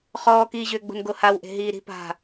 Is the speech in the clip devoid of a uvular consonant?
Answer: no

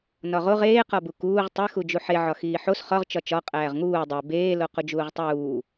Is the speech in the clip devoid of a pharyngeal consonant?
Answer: no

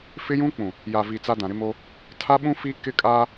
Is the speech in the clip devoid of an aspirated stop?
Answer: no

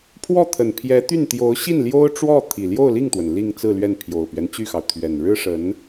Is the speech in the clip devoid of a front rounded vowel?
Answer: no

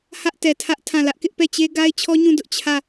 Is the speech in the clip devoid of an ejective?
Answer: yes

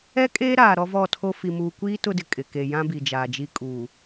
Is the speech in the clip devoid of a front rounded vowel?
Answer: yes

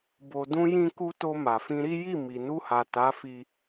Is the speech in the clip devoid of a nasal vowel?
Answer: no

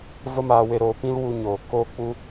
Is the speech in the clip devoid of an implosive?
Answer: yes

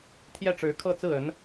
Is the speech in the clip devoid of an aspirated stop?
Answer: no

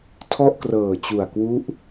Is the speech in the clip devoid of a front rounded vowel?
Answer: yes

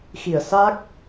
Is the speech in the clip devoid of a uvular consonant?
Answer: yes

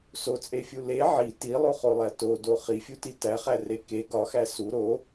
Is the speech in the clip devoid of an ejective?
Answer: no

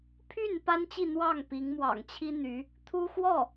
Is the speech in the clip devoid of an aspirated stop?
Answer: no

